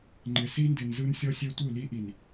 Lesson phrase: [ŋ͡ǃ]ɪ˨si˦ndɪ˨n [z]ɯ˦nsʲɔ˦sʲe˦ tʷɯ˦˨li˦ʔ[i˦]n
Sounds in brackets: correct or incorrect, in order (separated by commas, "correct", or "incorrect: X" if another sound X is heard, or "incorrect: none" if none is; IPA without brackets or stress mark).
correct, correct, incorrect: i˨